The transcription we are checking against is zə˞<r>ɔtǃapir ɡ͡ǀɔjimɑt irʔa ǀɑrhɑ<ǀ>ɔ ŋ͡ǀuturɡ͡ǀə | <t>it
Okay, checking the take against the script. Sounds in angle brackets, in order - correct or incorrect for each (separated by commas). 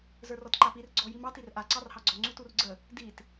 correct, incorrect, incorrect